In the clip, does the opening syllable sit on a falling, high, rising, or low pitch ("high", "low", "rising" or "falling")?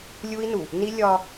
high